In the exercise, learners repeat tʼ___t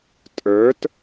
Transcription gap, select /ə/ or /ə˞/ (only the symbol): ə˞